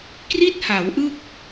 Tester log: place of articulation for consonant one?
velar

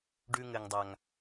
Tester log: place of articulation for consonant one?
retroflex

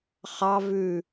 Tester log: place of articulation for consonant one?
uvular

